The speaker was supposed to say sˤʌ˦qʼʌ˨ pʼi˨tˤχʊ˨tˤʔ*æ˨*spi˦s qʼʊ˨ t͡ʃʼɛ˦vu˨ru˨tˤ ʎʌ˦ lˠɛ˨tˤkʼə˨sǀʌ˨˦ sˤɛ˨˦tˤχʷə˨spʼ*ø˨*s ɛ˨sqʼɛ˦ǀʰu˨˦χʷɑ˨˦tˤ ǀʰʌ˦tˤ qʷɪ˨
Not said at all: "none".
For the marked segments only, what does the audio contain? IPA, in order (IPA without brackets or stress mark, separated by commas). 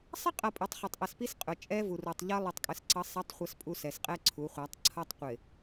ə˨, u˨